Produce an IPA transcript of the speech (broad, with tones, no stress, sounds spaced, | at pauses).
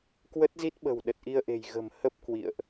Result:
k w ə˦˥ t̚ z i˦˥ t̚ ɓ ə̤˨˩ w ɗ ə˨˩ t̚ ʔ i˧ ə̯ ʔ e̤˨˩ j ɣ ə̤˨˩ m h ə˦˥ p̚ k w ḭ˧˨ ə̯ ʔ